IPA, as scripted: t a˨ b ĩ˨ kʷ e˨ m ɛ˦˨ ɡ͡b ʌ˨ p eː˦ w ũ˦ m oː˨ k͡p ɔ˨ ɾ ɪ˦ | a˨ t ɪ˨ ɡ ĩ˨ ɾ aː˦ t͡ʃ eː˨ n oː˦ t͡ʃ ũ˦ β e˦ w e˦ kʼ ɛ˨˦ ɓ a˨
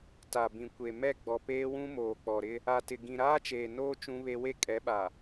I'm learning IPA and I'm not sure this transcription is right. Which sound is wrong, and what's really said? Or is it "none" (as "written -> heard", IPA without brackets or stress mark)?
ʌ˨ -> ɔ˨